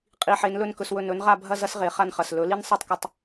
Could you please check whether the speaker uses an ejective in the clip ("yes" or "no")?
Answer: yes